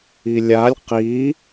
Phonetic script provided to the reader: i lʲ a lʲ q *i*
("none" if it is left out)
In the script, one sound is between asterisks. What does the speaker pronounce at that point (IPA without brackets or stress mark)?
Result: i